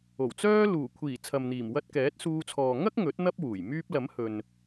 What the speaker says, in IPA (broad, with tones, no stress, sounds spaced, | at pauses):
o˨˩ w t͡s œː˥ l uː˨˩ kʷʰ iː˨˩ t͡sʰ ɐ˨ m n̪ iː˨˩ m w ɐ˧ t̚ k ɛː˨˥ t̚ s uː˧ t͡sʰ ɔː˨ ŋ ɐ˥ k̚ ŋ ɵ˨˥ t̚ n̪ ɐ˥ p̚ w uː˨˩ j m yː˧ p̚ l ɐ˨˥ m h ɵ˨ n